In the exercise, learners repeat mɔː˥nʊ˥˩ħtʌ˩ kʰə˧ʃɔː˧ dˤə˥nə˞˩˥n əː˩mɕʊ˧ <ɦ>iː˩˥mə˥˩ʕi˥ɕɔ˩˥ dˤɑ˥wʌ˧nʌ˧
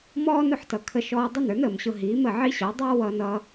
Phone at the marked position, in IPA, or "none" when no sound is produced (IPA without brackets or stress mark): ɦ